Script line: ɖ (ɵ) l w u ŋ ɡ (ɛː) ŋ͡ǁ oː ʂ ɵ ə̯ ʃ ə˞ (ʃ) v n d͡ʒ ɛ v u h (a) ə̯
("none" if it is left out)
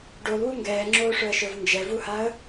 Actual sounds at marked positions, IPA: o, ɛː, none, a

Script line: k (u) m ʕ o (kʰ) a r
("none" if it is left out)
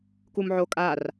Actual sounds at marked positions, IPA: u, kʼ

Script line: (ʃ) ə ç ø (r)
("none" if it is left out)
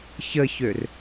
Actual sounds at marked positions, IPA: ç, r

